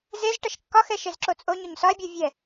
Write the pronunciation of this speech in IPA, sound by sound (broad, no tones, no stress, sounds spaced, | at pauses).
z e z ʈ ʌ ʃ kː ɒ x ɛ ʃ e z ǁ o t͡sʼ o ɲ o ɲ s ɒ e̯ bʲ o vʲ ɛ